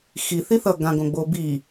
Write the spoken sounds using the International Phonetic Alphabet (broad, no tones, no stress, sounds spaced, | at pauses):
x i θ i θ ʌ ɡ ã ɡ õ ɡ͡b o b i